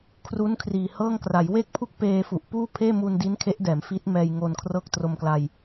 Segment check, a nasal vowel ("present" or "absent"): absent